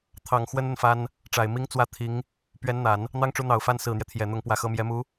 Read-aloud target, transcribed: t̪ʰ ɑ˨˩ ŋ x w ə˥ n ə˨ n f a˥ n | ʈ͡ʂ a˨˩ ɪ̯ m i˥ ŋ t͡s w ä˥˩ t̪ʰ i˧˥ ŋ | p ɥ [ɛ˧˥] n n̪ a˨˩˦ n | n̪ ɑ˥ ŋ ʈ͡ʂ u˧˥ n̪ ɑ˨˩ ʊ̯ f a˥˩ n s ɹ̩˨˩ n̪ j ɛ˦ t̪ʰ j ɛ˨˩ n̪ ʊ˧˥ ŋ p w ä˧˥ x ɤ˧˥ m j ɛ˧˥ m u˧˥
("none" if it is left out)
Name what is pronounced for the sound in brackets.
ɛ˧˥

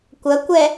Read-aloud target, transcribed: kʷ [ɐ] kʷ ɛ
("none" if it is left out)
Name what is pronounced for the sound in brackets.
ɐ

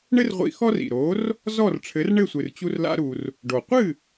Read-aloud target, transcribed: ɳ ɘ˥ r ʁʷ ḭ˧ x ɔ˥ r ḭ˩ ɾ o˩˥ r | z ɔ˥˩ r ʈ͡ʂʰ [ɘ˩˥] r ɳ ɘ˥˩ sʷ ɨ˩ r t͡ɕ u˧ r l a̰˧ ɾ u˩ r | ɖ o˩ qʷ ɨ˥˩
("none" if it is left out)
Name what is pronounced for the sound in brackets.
ɘ˩˥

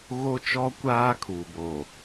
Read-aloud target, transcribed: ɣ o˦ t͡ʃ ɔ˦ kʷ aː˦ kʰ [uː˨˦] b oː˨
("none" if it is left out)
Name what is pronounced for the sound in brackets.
uː˨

